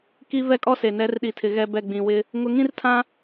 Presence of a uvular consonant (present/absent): absent